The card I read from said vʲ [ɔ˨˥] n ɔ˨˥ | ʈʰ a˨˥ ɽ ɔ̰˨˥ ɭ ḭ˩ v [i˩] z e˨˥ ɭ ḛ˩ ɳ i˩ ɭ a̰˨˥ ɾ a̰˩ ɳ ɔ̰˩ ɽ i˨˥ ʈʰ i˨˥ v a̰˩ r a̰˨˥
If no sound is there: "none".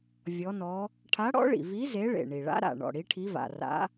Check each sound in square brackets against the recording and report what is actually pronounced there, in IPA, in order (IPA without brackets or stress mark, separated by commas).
ɔ˨˥, i˨˥